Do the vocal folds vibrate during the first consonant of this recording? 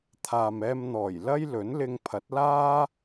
no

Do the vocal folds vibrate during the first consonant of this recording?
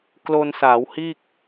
no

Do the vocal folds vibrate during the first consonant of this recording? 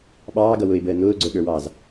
yes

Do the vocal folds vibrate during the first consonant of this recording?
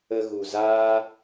yes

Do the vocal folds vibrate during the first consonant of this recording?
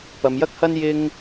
no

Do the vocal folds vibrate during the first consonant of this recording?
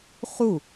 no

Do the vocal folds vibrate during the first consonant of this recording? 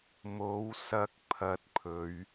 yes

